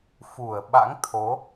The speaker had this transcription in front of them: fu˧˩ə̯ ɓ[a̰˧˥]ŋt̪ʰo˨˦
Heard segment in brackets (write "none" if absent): a̰˧˥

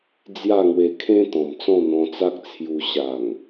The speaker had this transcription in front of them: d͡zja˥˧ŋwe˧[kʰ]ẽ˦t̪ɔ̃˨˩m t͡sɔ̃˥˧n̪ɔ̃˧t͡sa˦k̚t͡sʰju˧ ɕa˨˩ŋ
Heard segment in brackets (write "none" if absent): kʰ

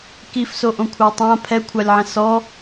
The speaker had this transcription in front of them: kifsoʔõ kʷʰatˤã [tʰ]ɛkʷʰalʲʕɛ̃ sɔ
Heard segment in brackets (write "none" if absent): pʰ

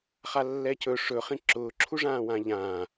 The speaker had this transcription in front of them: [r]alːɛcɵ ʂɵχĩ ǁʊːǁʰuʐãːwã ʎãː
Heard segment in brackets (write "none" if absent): χ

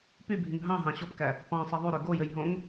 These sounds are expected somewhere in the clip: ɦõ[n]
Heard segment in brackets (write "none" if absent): ŋ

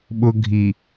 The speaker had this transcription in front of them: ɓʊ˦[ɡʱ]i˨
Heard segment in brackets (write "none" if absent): ɡʱ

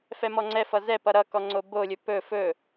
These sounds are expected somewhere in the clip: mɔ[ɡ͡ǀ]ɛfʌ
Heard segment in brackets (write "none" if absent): ŋ͡ǀ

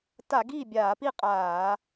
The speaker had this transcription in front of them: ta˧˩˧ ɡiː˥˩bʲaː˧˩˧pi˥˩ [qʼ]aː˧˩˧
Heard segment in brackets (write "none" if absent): qʼ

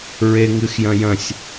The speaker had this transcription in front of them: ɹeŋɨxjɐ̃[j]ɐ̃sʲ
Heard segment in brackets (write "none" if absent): j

